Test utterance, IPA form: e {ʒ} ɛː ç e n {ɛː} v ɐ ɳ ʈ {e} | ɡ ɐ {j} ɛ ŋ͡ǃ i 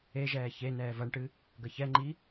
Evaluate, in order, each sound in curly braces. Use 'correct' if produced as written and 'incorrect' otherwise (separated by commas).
correct, correct, incorrect, incorrect